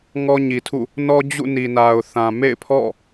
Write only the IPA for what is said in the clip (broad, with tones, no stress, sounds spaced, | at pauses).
ŋ ɔ˦ ɲ i˨ tʰ ṵ˦˨ | n ɔ˦ d͡ʑ ṵ˦˨ n i˨ n a˨ ʊ̯ θ ã˨ m ḛ˦˨ ɪ̯ pʰ ɔ̰˦˨